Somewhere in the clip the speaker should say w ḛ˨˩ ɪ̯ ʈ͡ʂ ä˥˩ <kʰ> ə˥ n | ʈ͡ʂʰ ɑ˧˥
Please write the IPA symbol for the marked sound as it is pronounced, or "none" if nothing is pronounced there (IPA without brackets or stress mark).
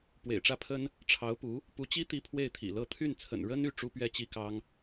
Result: pʰ